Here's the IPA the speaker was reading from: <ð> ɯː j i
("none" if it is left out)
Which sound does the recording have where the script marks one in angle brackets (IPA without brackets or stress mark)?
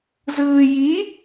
z